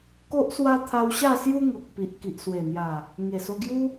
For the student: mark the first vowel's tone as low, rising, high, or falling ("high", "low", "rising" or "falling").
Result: high